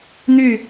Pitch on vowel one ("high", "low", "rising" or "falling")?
falling